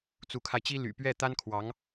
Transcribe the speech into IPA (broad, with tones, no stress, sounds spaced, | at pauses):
t͡s u˧˥ kʰ a˧ ɪ̯ t͡ɕ i˥ l y̰˨˩ p ɥ ɛ˥˩ t̪ a˥ n kʰ w ɑ˧˥ ŋ